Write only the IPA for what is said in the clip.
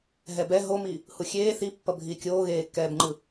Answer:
ɦɛbɛ ɦomi | huxʲeː θipːʌbʱiː kʲoːɣeːkːɛːbŋ͡ǃɯ

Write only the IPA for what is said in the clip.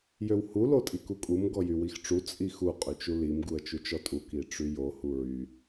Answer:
jøwhu lotʼikukʼum ɡɔjywixʈ͡ʂu t͡sʼixu qʼyt͡ʃulim ɡuə̯t͡ʃut͡ʃɔtʼu kiʈ͡ʂyjo huɹy

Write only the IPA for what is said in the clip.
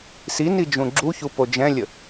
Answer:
sini d͡ʒũɡ͡ǁuçu pod͡ʒɛ̃lʲə

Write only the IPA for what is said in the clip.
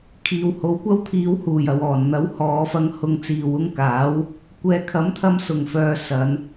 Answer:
kʰiː˨who˨˥wkʷɐ˥wt̪ʰiː˧w huː˨˩jɐ˨w ɔː˨˩nn̪ɐ˨˥whɔː˨˧fɐ˧ŋ hʊ˧ŋt͡siː˨wʊ˥ŋkaː˨˥w | kʷɛː˨kʰɐ˨˥mt̪ʰɐ˧m sʊ˨˩ŋfœː˨ sɐ˨˧n

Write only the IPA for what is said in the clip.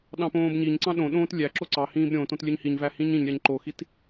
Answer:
ɗɑ̃põːbɲiɲǀɑ̃ ɗõɗõːt lʲæǁo ǀɑhĩːb ɾʲõtõt lʲøɲhiɲvæ hĩɲĩɲɾʲɑɲ ǃoxit

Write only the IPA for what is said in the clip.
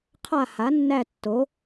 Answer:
qʰa˦˨ha˩˥nːæ˦˨ tːo˩˥

